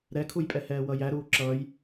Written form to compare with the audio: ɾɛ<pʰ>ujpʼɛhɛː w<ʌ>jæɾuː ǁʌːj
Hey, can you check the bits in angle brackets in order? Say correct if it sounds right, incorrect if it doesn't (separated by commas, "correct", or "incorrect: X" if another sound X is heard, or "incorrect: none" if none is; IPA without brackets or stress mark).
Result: incorrect: kʰ, correct